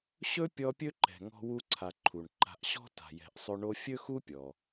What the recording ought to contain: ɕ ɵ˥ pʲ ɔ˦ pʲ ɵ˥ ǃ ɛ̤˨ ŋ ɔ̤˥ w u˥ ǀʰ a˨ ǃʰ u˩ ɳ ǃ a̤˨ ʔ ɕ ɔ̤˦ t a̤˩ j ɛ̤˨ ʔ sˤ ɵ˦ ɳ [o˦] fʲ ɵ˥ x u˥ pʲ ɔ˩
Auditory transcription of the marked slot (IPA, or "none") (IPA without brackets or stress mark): o˥